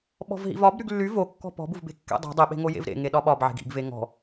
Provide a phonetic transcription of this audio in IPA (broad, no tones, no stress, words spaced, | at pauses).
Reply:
ɓɔ̤vɦḭvɒbɾyɡ lːy vokːɔ̤ pɔ̤buvbe̤ kːḛdˤe̤ dˤiɓe̤ŋo jḛvɾḛ ŋeɗɒɓɒbʕe̤ɡ ḭɡve ŋɔ̤